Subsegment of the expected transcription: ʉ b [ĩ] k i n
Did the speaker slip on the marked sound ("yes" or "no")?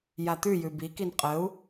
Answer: yes